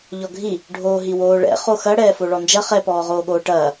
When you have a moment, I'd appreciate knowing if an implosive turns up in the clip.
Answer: yes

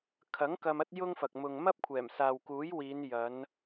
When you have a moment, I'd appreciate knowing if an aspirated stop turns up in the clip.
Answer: yes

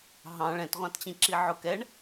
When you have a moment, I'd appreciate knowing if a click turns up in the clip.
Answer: yes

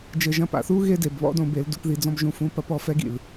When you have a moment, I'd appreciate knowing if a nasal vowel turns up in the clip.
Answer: yes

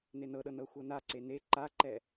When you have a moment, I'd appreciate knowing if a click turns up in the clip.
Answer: yes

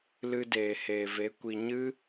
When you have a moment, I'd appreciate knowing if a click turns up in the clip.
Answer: no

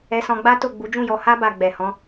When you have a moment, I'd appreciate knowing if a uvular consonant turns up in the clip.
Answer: no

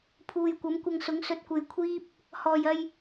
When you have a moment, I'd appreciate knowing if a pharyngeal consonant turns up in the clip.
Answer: no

